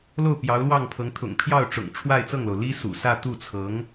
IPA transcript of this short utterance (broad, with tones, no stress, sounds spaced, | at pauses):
l o˥˩ ʊ̯ p j ɑ˧˥ ʊ̯ l w ɑ˥˩ ŋ pʰ ɤ˧˥ ŋ t̪ʰ ʊ̰˨˩ ŋ pʰ j ɑ˥˩ ʊ̯ ʈ͡ʂ ʊ̰˨˩ ŋ ʈ͡ʂʰ w a˥˧ ɪ̯ t͡s ɤ˥˩ ŋ l o˩ ʊ̯ l i˥ s ṵ˨˩ s ä˥˧ t̪ u˥˩ t͡sʰ ɤ˧˥ ŋ